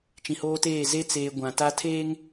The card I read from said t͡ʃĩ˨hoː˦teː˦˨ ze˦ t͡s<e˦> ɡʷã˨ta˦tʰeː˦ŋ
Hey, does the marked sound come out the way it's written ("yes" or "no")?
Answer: no